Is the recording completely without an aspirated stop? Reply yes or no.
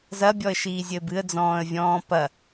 yes